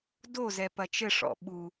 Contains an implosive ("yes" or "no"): yes